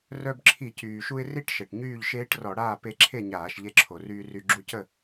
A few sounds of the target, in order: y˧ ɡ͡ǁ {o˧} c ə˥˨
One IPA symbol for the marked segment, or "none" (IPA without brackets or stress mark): u˧